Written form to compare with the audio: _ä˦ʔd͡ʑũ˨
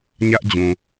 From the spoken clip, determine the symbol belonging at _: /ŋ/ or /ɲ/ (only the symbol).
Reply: ɲ